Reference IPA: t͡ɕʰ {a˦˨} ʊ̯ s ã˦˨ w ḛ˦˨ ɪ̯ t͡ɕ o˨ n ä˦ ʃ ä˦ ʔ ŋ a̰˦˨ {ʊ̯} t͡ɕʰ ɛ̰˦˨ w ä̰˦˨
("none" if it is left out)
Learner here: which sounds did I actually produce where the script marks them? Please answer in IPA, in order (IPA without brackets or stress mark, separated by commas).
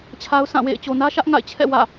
a˦, ɪ̯